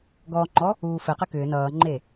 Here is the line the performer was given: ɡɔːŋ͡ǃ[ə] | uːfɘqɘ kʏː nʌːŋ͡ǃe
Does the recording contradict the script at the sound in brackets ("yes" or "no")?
yes